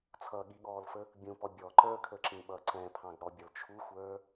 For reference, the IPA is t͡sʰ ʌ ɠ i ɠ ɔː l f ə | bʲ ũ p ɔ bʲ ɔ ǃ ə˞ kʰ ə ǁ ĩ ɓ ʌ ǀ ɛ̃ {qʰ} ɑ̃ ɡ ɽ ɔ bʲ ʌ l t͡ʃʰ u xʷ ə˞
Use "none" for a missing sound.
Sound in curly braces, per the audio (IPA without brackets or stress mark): pʰ